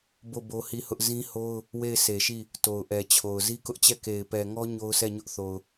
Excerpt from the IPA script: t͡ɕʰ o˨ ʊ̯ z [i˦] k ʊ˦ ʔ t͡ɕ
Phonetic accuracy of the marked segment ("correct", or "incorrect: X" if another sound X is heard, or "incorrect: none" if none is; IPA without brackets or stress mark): correct